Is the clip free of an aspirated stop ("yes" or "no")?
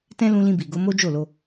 yes